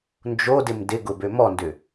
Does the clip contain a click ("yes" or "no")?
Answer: no